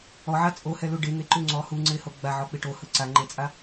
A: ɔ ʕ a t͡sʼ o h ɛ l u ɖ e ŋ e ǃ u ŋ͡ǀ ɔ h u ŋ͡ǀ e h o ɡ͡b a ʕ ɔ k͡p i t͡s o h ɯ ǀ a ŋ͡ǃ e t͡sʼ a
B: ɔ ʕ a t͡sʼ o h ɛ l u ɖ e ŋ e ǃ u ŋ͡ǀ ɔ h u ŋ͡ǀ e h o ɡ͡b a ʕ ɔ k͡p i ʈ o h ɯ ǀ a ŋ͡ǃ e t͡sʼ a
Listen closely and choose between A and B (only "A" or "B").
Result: B